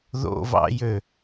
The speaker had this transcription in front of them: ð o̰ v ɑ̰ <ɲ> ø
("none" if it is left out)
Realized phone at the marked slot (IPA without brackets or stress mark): j